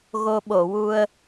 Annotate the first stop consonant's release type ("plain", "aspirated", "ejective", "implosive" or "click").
implosive